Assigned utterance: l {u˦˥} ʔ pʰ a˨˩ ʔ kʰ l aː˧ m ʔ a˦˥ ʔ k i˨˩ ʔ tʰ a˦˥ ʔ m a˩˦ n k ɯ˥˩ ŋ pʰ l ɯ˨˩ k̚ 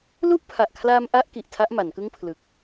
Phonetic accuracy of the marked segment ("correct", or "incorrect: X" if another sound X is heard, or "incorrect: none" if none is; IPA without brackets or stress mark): incorrect: u˥˩